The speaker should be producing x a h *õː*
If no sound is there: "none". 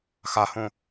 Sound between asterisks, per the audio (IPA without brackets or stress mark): õ